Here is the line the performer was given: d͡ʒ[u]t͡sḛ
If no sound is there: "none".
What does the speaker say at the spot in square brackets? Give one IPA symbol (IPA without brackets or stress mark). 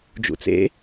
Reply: ṵ